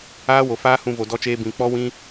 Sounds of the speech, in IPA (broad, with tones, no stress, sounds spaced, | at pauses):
aː˦ w o˨ f aː˦ h ũ˧ v o˧ d ɔ˦ t͡ʃ eː˦ b ĩ˧ k͡p ɔ˦ w ĩ˦